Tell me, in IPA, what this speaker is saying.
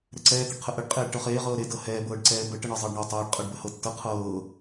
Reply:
ɾɛǀɛː t̪əɖqʰəʔəɖ qʼeːɖʈɤχeː ʁɤːɾe dɤhɛː bɤːɖǀɛːbə ʈəɳɤzˤɤːɖɳɤ tˤɛːɖ qʼɤɖbəhɤtːɤ qʰɤː

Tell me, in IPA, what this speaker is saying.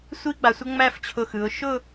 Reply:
sʷi˥ɡ͡ba˩˧sʷə˥ ŋ͡mæ˥˧ft͡ɕʰʊ˧˩xɯ˩˧ʊ̯ ʃʊ˥˧

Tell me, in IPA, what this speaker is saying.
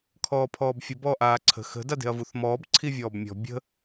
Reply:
kʰɔːpʰɔːbfʲə bɔːʔaːǀʰə̤ xə̤ dade̤ɐ̯vuθmɔːb ǀʰivʲɔːbmʲɔ̤ bʲə̤

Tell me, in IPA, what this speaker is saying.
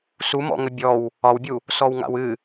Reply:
sumɔ̰ŋə bʲɔw | ɒwbʲu | sɔwŋa̰wɨ

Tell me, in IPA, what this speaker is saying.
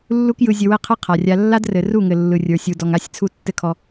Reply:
lːu˦kjɯ˧ zʲɘ˧wɘ˦qʰɘ˦ qʰa˨rʲa˧ lːa˦drɘ˨ ru˦˨ŋɘ˨ lːɯ˨rʲə˞˨sʲu˨ dɔ˨ŋa˦˨sʲt͡sʰu˧ tːɘ˦kʰɔ˧

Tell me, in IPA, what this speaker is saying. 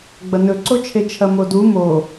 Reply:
ɡ͡bɐnɵǀot͡ʃʰe t͡ʃʰɐmodu mo

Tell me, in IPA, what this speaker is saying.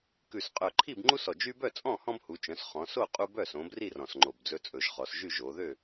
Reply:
kʉ˨˩sqʼœ˨˩ǃʰi˥˨b ŋ͡ǃu˦sɔ˨˩d͡ʒy˦bœ˥˨ t͡sʼɔ̃˥˨hɔ̃˦bhu˩˧t͡ʃœ̃˩˧s χɔ̃˩˧so˥˨ qʼu˦bœ˥˨ sõ˩˧bri˥˨ rɔ̃˨˩sŋ͡ǃo˨˩bd͡zɵ˦ t͡sʼɵ˨˩ʒχɔ˩˧sʒy˥˨ ʒo˩˧ ðø˥˨

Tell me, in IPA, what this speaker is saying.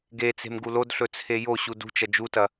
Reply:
ɡet͡se̤m ɡulodɬɵ t͡sʰejoɕu dṳt͡ʃɐ d͡ʒutɐ

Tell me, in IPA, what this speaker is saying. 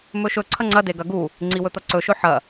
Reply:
mɵʃɵ ǀʰɐŋ͡ǀɐ deɡɐ ɡu | ŋ͡ǀiwɵt̪ɐǀɵ ʃɵħɐ

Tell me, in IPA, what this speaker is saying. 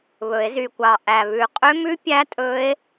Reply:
βɵ˨˩˦e̯zy˨˩kʷɑ˨˩ ʔæ˨˩βʉ˨˩qʼø˦˥mʉ˦˥ pʲæ˦˥ tʼɵ˦˥e̯

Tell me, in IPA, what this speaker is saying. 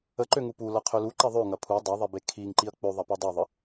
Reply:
əǃø ŋupu lɐqʰølu ǃɛðˤø ŋɐpʰu dˤɐðˤebe kʰiŋ ǃiɐ̯k͡pøðˤɐ pidˤuðˤə

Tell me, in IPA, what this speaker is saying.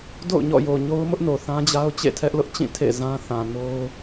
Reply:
do̰˦˨ʊ̯ɲɔ̰˦˨ jo˨ɲo˦ʊ̯mʊ˦ʔno˨ θã˦d͡ʑa˦ʊ̯ t͡ɕḛ˦˨tʰɛ˦ʔlʊ˦ʔt͡ɕĩ˦˨ tʰḛ˦˨zã˦ θã˨ no˦ʊ̯

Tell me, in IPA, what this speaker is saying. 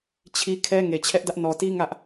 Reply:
t͡ɕʰi˦ kʰɛ˦ ŋe˨t͡ɕʰɛ˦ʔdä˦ʔ nɔ˨ti˦ ŋä˦ʔ

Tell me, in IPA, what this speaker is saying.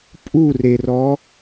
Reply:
pʼurerɔ

